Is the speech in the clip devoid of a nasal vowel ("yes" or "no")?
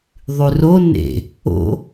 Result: yes